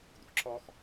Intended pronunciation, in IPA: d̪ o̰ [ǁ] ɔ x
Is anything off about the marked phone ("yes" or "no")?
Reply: no